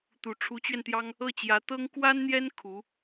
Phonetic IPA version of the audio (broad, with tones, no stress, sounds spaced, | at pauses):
t̪ u˨˩ ʈ͡ʂʰ u˧˥ t͡ɕ ɥ ɛ˧ n t̪ j ɑ˥ ŋ | ɤ˥˩ t͡ɕ j ä˧˥ t̪ ɤ˥ ŋ k w a˥ n n̪ j ɛ˥ n kʰ u˧˥